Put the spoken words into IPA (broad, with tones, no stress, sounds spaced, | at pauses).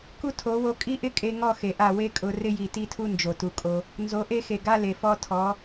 k u˦ tʰ o˨˦ w o˧ kʼ i˦ ʔ ɪ˦ kʼ e˧ ŋ ɔ˦˨ x e˨ ʔ a˦˨ w e˦ kʼ ʊ˧ r ɪ˦ j i˨ t i˦ tʰ u˦ n d͡ʒ o˨ t u˨ kʼ o˧ | n z o˨˦ ʔ e˦ x e˨ ɡ a˦ l e˨ f ɔ˧ tʰ ɔ˨˦